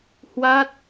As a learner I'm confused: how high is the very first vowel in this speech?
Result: low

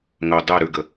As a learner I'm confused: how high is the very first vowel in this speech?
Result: mid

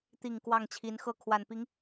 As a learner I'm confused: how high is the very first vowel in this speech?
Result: high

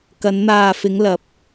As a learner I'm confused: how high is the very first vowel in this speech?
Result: low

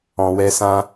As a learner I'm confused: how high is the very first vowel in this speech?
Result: mid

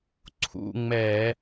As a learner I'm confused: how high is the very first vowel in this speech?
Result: high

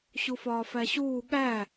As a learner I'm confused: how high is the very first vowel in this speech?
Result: high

